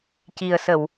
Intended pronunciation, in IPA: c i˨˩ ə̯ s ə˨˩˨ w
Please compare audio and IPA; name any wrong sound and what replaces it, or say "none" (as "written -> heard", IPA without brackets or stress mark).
none